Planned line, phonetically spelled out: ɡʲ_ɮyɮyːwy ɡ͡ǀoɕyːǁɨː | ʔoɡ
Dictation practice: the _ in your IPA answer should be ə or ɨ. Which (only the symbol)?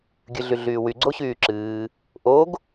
ɨ